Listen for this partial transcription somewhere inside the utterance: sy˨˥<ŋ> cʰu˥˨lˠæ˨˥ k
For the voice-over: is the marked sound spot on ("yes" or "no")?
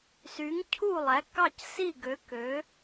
yes